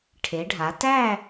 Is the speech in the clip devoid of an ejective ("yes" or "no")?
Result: yes